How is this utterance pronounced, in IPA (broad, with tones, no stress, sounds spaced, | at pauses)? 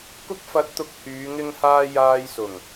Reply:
k ʊ˥ k̚ f ɐ˧ t̚ t̪ ʊ˧ k̚ h yː˨˧ ŋ ɪ˥ ŋ h aː˥ j aː˧ j s ʊ˨˩ ŋ